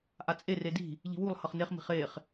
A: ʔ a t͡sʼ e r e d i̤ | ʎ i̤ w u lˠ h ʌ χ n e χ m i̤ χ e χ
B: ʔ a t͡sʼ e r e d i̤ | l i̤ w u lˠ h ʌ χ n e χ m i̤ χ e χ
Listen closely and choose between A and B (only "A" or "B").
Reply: A